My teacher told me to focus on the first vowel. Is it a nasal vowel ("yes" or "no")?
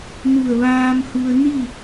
no